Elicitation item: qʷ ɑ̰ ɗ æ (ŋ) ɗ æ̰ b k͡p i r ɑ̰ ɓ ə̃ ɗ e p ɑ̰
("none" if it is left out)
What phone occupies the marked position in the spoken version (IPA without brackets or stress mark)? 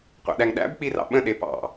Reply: ŋ